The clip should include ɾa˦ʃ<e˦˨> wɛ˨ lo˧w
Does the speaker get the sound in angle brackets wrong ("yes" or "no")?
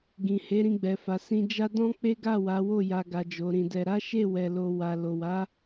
no